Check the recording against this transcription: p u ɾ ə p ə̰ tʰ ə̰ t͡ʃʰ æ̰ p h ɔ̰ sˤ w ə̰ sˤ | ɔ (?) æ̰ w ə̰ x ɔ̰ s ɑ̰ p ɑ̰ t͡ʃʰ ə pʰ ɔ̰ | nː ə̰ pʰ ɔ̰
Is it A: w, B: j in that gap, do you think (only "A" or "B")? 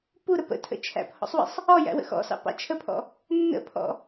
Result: B